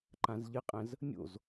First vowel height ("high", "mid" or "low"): low